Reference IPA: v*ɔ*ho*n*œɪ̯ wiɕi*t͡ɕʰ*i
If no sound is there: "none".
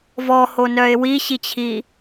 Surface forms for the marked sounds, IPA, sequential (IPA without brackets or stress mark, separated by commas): ɔ, n, t͡ɕʰ